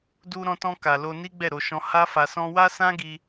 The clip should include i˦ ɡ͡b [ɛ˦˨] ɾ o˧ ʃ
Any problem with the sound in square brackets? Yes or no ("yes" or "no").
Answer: no